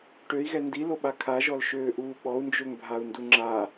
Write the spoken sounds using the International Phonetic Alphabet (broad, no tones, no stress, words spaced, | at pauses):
ʈøi̯ɣɛ ndiloɓa kʰaʒɔlʃøːʔuː ɓɔu̯nd͡ʒøŋbʱau̯ndu ŋ͡ǁa